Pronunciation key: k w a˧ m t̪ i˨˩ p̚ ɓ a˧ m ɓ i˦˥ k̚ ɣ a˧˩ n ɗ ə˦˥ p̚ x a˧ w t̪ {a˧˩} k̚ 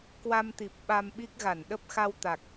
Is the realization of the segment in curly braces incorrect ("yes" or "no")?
yes